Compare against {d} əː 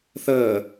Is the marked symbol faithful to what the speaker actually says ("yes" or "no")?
no